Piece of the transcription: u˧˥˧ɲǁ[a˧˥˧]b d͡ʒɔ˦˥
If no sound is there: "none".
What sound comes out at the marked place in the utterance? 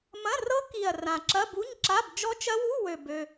a˧˥˧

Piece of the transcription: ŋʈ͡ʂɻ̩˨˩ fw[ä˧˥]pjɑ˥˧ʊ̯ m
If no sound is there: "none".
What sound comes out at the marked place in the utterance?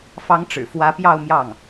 ä˧˥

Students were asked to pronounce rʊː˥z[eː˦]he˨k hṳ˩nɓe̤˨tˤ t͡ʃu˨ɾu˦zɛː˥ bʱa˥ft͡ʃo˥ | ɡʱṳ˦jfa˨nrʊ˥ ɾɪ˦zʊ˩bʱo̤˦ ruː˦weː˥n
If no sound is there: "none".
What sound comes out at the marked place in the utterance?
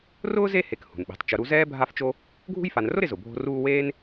e˦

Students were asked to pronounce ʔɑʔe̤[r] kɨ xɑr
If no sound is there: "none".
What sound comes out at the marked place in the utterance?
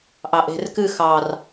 r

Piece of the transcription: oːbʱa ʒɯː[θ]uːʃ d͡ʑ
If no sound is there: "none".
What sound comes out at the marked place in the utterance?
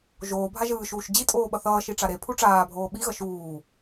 ʃ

